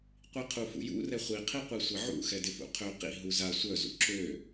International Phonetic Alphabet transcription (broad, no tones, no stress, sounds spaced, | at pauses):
qʷ i qʰ u f ṵ j ṵ r ɛ χʷ i qʰ i qʷ i sʷ ɛ ʕ ṵ x ɛ d ɪ f ṵ qʰ ø q ḭ ɦ u z a sʷ œ z ṵ ǁ ø